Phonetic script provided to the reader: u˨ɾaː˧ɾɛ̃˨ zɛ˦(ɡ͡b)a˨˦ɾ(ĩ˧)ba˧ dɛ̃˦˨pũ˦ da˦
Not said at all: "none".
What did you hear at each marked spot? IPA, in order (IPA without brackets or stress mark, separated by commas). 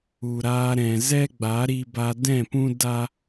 ɡ͡b, i˧